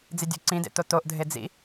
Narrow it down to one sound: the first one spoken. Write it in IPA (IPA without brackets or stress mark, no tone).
d͡z